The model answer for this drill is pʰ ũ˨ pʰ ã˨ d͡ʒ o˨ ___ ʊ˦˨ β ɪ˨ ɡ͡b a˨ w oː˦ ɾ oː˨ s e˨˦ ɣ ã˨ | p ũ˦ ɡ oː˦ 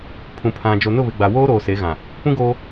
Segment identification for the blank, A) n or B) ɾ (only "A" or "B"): A